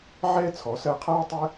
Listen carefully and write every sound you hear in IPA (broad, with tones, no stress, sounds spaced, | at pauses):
ʕ ɛ˥ t͡sʰ ɔ˩˥ s ɜ˧ qʰ aː˥ tˤ ɛ˥